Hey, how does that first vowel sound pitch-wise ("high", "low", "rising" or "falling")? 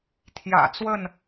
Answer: low